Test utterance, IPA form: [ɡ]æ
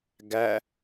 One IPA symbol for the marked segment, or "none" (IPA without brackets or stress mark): ɡ